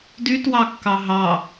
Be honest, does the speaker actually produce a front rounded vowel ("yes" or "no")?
yes